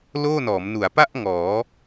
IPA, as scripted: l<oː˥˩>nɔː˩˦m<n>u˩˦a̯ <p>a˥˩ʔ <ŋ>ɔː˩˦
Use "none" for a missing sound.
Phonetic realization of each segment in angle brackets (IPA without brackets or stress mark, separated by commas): oː˥˩, n, p, ŋ